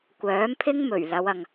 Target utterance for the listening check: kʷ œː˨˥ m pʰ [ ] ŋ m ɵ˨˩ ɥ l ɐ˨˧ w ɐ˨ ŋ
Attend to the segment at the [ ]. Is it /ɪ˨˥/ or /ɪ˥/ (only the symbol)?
ɪ˥